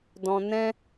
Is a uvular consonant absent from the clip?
yes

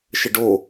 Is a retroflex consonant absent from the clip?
no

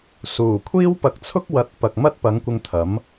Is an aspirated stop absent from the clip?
no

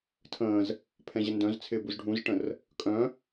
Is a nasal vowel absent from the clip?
no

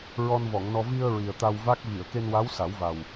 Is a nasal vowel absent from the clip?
yes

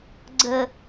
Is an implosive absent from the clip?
yes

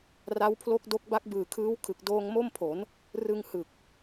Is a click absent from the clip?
yes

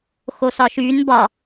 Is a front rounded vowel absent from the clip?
no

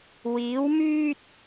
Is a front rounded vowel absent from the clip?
no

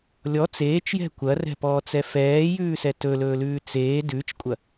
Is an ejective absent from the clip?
no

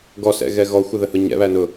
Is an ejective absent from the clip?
yes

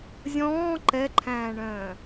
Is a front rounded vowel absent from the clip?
no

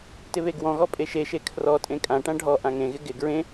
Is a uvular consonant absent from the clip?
yes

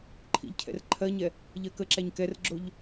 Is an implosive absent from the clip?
yes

